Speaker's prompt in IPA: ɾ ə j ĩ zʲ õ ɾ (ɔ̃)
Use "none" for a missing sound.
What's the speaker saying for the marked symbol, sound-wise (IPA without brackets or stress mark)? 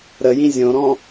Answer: ɔ̃